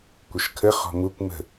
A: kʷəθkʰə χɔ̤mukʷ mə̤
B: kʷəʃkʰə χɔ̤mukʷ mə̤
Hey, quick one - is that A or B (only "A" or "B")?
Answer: B